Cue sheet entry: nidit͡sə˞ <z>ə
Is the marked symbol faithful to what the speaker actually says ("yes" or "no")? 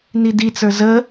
yes